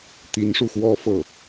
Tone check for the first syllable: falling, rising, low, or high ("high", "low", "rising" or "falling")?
rising